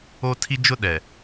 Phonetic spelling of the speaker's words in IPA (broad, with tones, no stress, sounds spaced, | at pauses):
o˦ tʰ i˦ d͡ʒ ʊ˦ ɗ ɛ˨